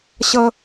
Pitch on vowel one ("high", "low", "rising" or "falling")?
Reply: high